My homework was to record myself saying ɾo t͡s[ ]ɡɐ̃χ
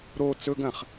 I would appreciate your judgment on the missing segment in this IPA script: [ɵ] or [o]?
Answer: ɵ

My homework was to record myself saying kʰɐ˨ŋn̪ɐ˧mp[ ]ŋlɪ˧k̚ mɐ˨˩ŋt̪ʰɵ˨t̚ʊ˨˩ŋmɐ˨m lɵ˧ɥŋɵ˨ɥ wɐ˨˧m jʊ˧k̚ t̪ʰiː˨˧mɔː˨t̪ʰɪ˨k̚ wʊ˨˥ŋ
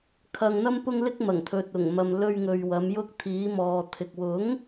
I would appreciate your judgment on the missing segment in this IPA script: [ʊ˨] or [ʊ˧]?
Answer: ʊ˧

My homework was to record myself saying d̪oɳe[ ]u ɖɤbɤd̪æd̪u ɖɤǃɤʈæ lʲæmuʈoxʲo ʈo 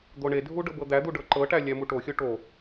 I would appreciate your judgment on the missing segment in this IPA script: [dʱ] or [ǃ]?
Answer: dʱ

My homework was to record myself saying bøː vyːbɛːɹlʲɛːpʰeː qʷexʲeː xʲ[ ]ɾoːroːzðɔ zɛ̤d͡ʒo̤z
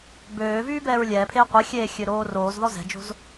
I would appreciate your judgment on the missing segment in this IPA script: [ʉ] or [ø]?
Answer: ø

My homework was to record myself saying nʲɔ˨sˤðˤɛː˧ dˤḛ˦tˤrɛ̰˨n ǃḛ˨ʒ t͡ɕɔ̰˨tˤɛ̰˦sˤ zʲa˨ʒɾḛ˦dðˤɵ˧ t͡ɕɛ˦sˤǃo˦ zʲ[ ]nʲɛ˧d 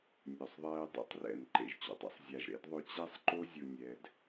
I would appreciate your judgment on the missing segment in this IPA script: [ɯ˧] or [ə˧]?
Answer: ɯ˧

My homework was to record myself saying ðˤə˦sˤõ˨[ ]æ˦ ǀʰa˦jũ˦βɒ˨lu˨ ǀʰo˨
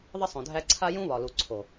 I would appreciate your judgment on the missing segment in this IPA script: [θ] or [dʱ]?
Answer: dʱ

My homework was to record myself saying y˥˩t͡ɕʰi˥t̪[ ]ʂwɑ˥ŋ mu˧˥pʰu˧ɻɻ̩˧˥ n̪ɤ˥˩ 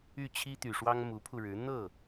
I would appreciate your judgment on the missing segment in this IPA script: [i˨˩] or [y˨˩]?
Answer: y˨˩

